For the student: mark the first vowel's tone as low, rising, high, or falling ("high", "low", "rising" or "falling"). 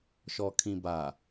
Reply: low